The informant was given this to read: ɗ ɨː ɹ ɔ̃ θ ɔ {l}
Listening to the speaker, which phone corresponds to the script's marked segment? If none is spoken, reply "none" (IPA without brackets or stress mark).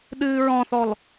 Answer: l